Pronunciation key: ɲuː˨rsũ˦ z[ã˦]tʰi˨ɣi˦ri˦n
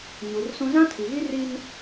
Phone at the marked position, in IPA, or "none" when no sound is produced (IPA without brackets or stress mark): ã˦